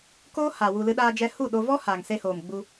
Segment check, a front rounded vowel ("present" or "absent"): absent